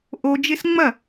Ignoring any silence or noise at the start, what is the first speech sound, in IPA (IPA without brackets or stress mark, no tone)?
ʔ